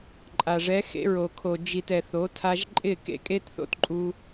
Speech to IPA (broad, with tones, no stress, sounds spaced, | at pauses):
ǃʼ a˨ ʐ ɛ˨˦ x ḛ˧ ɹ o˨ kʰ o˨ d͡ʒ i˨ t ɛ˨ θ o˨˦ tʰ a˧ ʒ ǃʼ ɪ˦˨ k ḛ˦ kʼ e˦ t θ o̰˦ t ǃʼ u˧